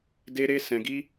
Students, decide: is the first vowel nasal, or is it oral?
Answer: oral